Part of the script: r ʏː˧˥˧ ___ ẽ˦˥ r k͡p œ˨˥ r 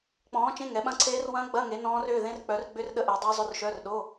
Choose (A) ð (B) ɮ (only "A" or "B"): A